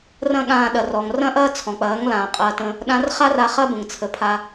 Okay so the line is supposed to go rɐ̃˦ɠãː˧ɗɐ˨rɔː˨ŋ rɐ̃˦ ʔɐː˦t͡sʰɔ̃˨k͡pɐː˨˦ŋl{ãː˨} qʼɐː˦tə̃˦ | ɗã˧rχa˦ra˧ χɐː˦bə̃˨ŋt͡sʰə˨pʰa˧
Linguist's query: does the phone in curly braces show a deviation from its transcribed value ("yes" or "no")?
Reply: no